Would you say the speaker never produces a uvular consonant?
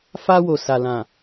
yes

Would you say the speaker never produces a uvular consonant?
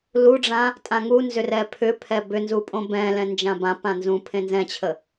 yes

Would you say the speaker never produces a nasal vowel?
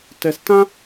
no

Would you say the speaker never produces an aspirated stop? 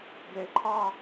no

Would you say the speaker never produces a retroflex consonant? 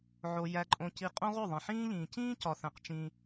yes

